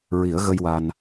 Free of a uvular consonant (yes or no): yes